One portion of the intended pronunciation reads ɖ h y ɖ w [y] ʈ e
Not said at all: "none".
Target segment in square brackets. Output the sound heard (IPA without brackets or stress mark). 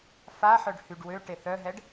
ø